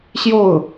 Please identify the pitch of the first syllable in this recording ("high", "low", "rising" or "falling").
falling